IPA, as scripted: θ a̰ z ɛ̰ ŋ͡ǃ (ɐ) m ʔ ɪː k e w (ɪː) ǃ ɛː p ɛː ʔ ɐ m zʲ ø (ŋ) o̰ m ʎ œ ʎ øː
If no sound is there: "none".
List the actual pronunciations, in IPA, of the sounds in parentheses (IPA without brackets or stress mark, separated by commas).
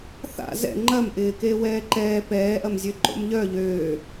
ɐ, ɛː, ǃ